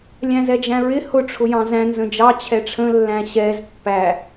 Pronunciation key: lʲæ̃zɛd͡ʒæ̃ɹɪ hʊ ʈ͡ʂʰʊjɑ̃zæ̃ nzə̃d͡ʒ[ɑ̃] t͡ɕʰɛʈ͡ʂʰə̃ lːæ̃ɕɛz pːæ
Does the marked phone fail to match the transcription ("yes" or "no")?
yes